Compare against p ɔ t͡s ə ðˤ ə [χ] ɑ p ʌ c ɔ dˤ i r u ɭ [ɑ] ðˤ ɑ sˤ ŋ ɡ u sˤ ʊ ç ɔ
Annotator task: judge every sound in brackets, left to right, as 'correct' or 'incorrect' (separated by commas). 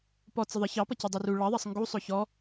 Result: incorrect, correct